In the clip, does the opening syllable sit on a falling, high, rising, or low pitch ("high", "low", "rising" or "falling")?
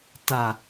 low